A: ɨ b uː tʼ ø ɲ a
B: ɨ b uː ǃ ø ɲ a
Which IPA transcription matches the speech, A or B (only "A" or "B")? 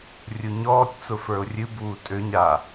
A